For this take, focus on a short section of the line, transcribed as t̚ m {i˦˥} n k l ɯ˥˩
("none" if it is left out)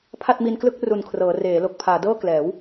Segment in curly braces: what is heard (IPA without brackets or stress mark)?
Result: i˧